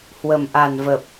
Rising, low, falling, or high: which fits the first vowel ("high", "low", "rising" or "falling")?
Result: low